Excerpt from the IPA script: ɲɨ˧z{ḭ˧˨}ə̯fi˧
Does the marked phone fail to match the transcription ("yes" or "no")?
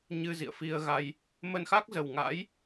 no